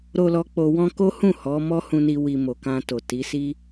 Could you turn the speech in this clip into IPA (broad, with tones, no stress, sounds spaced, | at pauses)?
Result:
ɾ o˨ l ɔ˧ k͡p o˧ w ɔ̃˦ k o˦ h ũ˦˨ h ɔ˨˦ m ɔ˦ h ũ˧ n i˧ w i˨ m o˨ k ã˧ t o˨ t i˨˦ s i˦